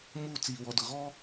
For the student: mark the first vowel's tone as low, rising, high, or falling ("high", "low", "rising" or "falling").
falling